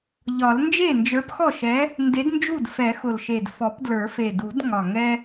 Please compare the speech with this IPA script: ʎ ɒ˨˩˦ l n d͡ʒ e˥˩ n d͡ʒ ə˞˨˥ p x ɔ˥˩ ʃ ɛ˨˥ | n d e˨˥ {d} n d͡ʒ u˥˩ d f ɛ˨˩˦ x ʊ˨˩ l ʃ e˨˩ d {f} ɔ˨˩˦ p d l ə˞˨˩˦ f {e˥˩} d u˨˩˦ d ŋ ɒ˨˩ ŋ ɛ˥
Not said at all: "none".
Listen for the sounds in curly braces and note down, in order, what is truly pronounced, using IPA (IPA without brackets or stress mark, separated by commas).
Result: d, f, e˨˩